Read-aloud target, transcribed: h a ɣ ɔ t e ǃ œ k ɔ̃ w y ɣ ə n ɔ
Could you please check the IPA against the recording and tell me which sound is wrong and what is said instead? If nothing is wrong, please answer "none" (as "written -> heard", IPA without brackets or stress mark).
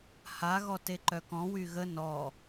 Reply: none